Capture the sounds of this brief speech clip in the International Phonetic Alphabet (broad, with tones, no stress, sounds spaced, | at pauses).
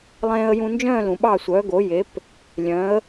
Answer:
lˠ ẽː˧ ə̯ j ũ˧ n d͡ʒ œ̃ː˥˩ l ũ˩ ɓ ɑ˥˩ sʷ œː˩˥ ɡ o˩˥ j e˩˥ p | lʲ œ̃˩˥ ə̯